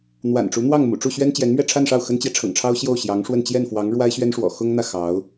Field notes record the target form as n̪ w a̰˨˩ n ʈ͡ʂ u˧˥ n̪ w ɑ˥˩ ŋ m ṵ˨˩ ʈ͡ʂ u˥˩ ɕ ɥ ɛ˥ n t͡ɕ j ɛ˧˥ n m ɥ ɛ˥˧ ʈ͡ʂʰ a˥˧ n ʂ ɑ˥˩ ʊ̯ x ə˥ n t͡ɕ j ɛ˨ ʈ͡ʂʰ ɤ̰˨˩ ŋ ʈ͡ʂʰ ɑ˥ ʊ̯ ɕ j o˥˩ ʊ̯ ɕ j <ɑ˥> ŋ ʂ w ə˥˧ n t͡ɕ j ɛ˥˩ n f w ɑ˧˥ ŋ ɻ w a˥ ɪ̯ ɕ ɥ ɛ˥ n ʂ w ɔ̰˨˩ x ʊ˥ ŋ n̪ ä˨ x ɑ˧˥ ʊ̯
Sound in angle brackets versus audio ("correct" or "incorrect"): incorrect